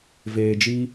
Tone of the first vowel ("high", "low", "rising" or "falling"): low